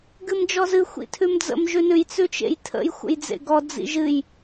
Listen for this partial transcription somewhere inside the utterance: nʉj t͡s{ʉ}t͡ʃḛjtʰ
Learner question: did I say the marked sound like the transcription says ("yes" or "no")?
yes